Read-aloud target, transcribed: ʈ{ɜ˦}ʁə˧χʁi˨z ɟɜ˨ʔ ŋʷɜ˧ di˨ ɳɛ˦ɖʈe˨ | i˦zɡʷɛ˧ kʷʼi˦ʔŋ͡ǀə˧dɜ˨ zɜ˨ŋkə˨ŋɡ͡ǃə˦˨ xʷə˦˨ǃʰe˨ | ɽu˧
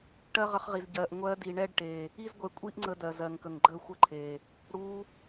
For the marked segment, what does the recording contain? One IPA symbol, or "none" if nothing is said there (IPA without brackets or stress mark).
ɜ˦